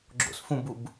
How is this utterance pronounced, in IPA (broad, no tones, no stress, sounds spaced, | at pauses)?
ɡ͡ǁ o̰ s f ũ b u b